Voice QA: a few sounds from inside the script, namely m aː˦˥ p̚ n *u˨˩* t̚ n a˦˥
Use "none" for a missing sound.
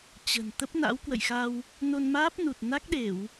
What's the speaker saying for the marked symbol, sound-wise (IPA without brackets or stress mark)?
u˨˩